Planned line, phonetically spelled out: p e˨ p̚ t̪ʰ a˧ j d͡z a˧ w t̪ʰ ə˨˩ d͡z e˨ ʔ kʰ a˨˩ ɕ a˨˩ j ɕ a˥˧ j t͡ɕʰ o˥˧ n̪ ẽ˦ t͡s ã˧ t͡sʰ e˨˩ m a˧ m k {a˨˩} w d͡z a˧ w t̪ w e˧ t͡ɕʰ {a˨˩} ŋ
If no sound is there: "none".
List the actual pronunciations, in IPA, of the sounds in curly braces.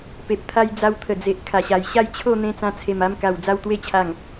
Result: a˨˩, a˨˩

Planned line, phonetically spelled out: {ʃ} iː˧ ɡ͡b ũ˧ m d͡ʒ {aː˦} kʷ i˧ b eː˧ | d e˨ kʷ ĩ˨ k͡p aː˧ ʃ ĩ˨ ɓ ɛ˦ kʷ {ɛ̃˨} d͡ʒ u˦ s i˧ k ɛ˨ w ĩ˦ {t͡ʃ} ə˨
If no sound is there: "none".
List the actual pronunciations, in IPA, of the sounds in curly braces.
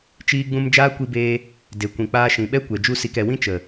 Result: t͡ʃ, aː˦, ɛ˨, t͡ʃ

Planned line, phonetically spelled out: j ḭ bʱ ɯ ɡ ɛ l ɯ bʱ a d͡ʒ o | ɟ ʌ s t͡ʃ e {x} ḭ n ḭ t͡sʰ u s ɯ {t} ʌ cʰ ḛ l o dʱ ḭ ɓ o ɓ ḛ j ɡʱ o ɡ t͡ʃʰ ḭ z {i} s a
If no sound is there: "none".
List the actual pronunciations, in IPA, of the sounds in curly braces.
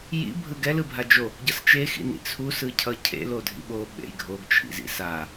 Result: x, cʰ, ḭ

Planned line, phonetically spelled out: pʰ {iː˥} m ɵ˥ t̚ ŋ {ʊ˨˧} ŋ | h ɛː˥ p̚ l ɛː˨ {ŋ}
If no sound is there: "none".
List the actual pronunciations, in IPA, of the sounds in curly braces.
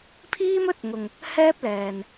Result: iː˥, ʊ˨, n

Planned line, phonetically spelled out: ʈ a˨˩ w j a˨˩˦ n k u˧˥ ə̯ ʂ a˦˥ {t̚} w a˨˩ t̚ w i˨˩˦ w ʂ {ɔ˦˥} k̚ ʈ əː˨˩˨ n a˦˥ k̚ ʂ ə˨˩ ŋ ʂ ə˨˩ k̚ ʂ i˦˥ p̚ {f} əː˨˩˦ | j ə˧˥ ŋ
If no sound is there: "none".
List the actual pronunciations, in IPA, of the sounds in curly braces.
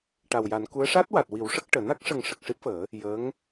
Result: t̚, ə˦˥, f

